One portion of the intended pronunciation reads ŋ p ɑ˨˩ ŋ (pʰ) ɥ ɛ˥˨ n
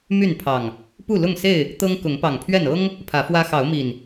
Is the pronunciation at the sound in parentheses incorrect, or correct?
correct